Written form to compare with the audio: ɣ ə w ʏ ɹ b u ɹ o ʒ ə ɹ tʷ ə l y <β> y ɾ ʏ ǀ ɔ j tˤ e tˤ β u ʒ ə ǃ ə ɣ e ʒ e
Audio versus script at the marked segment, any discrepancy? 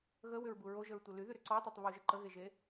yes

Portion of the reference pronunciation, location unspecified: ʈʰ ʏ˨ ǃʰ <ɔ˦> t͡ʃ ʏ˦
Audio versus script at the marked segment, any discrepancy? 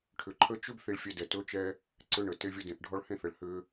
yes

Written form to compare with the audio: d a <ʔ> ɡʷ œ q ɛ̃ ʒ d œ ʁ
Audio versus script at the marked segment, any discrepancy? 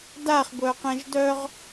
yes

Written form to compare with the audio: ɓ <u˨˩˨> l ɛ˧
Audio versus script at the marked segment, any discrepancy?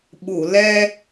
no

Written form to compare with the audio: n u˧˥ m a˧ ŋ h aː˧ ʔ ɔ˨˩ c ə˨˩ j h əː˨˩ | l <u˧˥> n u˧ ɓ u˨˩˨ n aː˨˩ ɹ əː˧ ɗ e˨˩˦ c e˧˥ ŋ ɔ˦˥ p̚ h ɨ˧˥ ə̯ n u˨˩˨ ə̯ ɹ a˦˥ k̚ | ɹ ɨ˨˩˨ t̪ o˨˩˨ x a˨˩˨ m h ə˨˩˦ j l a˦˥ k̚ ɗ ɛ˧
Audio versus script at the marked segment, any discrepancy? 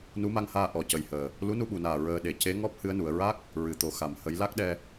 no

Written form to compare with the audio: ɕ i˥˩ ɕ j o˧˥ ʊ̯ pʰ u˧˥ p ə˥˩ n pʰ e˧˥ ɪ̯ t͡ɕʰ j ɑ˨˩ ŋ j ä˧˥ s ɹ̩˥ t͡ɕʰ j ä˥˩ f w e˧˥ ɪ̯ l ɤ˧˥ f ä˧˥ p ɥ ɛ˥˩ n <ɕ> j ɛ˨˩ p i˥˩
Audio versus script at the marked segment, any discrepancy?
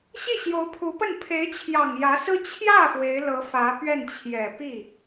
yes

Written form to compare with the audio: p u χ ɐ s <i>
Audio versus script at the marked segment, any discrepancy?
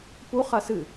yes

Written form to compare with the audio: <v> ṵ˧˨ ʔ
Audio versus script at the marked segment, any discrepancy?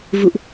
no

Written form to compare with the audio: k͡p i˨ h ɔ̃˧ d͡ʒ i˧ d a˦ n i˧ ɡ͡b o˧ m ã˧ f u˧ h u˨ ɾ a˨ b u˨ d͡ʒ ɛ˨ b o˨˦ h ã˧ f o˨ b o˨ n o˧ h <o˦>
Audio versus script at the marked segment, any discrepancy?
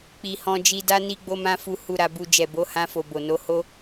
no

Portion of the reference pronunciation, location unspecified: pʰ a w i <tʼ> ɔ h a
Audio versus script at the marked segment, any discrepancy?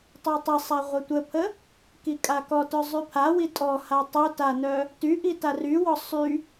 no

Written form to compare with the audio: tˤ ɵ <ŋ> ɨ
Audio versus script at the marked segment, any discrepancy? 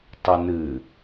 yes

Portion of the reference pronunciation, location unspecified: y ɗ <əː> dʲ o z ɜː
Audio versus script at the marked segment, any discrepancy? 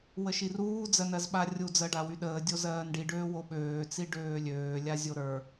no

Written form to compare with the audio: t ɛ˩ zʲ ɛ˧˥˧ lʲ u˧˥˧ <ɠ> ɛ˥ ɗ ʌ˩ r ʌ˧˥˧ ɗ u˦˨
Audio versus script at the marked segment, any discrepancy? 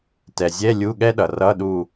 no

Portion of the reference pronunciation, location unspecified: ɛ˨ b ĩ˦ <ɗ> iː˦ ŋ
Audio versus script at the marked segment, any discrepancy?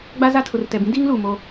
yes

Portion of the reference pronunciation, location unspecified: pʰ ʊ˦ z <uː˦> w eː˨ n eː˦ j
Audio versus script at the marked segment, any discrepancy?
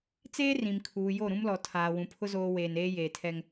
yes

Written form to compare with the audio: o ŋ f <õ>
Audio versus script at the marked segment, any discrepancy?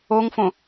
no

